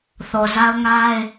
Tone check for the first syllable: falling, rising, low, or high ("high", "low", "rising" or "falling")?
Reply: low